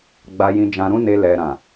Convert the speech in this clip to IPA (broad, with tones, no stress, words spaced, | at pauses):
ɡ͡ba˧jĩ˧d͡ʒã˧ɾũ˦ ne˧ lɛ˨ ɾã˨